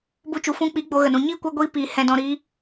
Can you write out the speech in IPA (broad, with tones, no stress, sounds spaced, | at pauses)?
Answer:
b u˦ t͡ʃ u˧ f ũ˧ k͡p i˨˦ ɡ͡b o˧ ɣ ə˨ n ũ˨ ɲ iː˦ kʷ a˧ ɡʷ iː˧ p iː˨ h ɛ̃˨ d ɔ̃˨ ɾ iː˧